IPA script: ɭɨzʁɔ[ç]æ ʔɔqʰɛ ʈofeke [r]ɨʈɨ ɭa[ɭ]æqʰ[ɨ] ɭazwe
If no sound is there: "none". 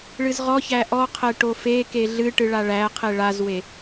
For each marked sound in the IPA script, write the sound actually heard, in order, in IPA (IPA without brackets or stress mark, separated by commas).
ç, ɮ, ɭ, e